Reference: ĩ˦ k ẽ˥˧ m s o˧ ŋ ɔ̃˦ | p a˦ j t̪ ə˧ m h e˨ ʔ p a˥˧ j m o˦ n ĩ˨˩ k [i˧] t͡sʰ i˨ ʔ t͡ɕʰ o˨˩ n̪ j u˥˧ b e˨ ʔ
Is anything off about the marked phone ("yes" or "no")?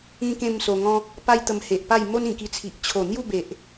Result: no